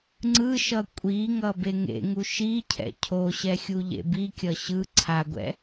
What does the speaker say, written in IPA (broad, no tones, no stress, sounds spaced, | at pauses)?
ŋ͡ǀ ɯ ʃ ʌ kʷʼ i ŋ ʌ b e ŋ ḛ ŋ u ʃ i cʰ ɛ̰ cʰ o ɕ ɛ xʲ u ʎ ḛ b i kʲ ʌ ɕ ɯ ǀʰ a ɡʷ ɛ̰